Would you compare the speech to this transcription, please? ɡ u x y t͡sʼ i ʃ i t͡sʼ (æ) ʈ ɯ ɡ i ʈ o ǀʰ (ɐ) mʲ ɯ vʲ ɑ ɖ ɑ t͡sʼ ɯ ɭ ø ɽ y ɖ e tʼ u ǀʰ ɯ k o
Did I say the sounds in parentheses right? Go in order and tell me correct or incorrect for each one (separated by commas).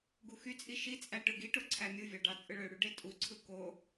correct, incorrect